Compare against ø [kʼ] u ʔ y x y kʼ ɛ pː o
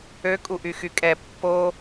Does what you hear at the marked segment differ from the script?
no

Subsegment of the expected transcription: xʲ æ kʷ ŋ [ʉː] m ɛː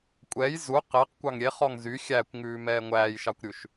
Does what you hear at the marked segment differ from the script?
no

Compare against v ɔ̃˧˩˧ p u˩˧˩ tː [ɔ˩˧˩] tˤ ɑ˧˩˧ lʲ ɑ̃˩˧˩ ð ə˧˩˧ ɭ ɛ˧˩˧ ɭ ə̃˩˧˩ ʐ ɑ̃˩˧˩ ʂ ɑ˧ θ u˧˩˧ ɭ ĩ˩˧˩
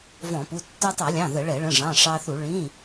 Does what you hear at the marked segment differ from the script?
yes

